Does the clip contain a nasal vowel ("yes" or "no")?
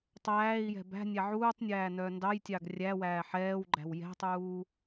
no